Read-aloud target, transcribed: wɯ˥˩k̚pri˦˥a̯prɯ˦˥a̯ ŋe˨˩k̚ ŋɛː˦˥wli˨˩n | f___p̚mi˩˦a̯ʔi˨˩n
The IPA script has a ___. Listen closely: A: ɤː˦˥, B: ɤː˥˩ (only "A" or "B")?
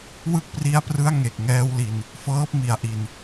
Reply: A